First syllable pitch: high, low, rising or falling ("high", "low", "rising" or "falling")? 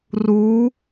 rising